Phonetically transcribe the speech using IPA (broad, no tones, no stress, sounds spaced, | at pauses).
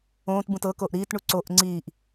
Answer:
õː t b ũ t ɤ k o ʔ ɾ iː t ɳ u ǀ o ʔ ŋ͡ǀ iː ʔ